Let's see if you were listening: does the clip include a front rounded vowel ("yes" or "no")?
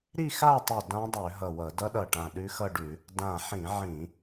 yes